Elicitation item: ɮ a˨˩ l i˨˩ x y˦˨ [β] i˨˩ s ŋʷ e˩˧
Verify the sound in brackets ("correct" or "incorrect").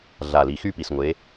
incorrect